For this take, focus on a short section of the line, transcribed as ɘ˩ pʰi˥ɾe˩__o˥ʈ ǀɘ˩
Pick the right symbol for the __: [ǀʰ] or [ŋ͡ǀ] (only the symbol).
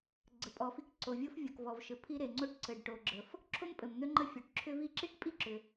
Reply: ŋ͡ǀ